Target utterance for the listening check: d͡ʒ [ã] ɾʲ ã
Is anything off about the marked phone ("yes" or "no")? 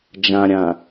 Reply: no